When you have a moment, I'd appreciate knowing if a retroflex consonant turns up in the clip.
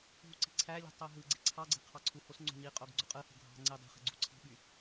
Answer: no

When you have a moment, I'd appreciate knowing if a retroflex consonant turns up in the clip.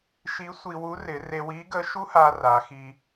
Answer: no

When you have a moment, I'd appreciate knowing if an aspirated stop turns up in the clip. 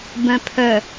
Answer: yes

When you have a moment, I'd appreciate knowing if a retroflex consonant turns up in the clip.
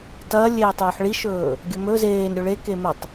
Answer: yes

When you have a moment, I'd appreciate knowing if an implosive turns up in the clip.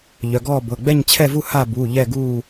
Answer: no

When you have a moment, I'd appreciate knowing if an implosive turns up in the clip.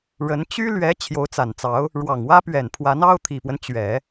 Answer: no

